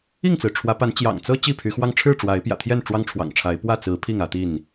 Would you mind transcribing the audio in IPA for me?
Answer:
i˥˨ ŋ t͡s ɹ̩˩ ʈ͡ʂʰ w ä˨˦ p a˨˦ n t͡ɕ j ɑ̰˨˩ ŋ t͡s ɤ˦ t͡ɕ i˥˨ pʰ y˨˦ x w ɑ˦ ŋ ʈ͡ʂʰ ɻ̩˥˨ ʈ͡ʂ w a˨˦ ɪ̯ p j ä̰˨˩ t̪ʰ j ɛ˥˨ n ʈ͡ʂ w ɑ˦ ŋ ʈ͡ʂʰ w ɑ̰˨˩ ŋ ʈ͡ʂʰ a˨˦ ɪ̯ p w ä˥˨ t͡s ɹ̩˨˦ pʰ i˥˨ ŋ ä˨˦ t̪ i˥˨ n

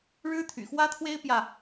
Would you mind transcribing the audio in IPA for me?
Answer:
ɻ ɻ̩˦ t̪ʰ y̰˨˩ x w ä˦ t̪ʰ w e˦ ɪ̯ p j ä˥˨

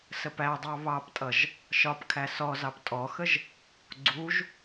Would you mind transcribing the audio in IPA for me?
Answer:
s ə p æ dˤ ɑ β ɑ p tʼ ʌ ʒ | ʃ ɒ p kʰ æ s ɔ z ɑ p tʼ ɔ x ə ʒ | ɡ͡ǀ u ʒ

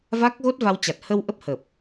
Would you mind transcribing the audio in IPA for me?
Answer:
v a˦˥ k̚ ɣ o˦˥ t̚ v a˧ w t͡ɕ a˨˩ t̚ h ə˧ w ʔ ə˦˥ p̚ h ə˨˩ p̚

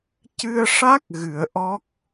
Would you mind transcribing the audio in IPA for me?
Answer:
c ɨ˧ ə̯ ʂ a˦˥ k̚ ɣ ɨ˨˩˦ ə̯ ʔ ɔ˦˥ k̚

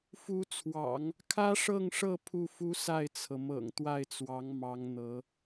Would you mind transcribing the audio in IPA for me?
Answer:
f u˧˥ t͡sʰ w ɑ̰˨˩˦ ŋ | kʰ ä˥ ʂ ɤ˥˧ ŋ ʂ ɤ˥˧ pʰ u˥˩ f u˥ s a˥˩ ɪ̯ t͡sʰ ɤ˩ m ɤ̰˨˩ ŋ t̪ w a˥˩ ɪ̯ t͡s w ɑ˧˥ ŋ m ɑ˧˥ ŋ n̪ ɤ˧˥

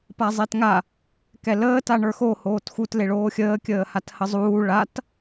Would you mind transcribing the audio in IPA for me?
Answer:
p a zˤ e t ŋ a | k ɛ l əː t a ɳ ə˞ x o h oː t x u t l e ɭ oː xʲ əː kʲ əː h a t h ə zˤ uː ɭ a t

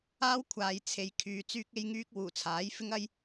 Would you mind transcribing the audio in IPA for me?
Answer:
aː˥ w kʷʰ aː˨ j t͡sʰ e˨ j kʰ yː˨ t͡s yː˥ k̚ e˥ j ŋ yː˥ k̚ w uː˨˩ t͡sʰ aː˨˥ j f ɪ˥ ŋ ɐ˥ j

